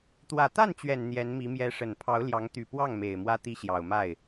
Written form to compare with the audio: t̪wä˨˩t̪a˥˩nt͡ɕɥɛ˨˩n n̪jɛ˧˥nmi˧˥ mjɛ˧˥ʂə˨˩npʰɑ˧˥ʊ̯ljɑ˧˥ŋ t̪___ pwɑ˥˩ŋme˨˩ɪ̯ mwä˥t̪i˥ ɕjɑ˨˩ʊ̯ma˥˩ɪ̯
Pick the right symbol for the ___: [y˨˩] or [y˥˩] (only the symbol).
y˨˩